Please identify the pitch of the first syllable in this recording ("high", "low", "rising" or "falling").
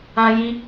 high